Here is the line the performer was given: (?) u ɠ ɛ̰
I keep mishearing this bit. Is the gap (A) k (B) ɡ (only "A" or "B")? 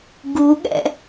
B